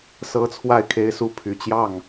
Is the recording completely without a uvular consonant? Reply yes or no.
yes